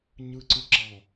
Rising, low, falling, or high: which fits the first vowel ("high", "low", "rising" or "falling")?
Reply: low